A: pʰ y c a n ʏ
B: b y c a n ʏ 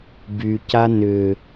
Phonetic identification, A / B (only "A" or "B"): B